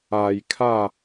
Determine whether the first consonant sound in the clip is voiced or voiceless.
voiced